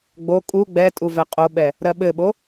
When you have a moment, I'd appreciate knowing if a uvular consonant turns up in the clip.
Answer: yes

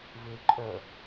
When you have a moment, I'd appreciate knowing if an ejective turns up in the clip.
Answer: yes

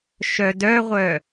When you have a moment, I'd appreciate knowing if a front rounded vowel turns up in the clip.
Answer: yes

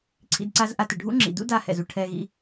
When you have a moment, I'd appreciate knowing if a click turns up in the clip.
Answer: yes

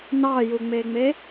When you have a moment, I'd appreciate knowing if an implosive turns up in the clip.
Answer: no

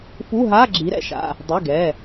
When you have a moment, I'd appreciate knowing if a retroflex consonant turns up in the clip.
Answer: no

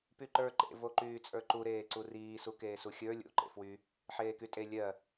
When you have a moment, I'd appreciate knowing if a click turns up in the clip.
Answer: yes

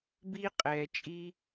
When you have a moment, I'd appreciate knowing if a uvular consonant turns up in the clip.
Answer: yes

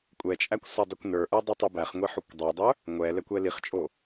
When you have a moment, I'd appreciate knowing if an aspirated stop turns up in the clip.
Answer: no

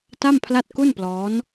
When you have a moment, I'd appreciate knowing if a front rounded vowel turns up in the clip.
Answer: no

